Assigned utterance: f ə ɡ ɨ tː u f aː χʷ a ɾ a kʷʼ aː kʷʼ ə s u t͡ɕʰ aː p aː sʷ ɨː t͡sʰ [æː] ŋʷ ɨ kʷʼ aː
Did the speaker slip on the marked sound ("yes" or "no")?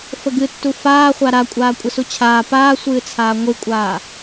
yes